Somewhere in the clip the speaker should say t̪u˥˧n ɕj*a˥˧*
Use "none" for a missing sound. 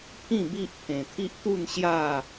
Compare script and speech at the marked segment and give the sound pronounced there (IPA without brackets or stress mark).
a˥˧